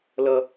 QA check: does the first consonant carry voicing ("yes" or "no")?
yes